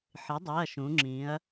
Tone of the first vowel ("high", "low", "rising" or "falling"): rising